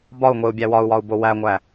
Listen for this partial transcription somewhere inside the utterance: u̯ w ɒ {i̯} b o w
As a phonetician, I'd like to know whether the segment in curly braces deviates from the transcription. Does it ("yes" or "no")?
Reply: yes